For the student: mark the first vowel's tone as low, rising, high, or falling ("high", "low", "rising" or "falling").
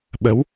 rising